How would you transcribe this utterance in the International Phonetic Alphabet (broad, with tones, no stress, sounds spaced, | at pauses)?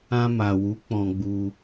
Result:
ã˧ m a˨ w u˨˦ k͡p ɔ̃˧ ɡ͡b u˧